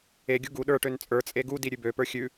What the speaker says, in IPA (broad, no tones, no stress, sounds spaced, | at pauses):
e ɡʲ u ɡ u ɗ ə˞ ʈ ø n t͡sʼ ə˞ t͡sʼ e ɡ u d i ɾʲ ʉ b ø p ə˞ xʲ ʉ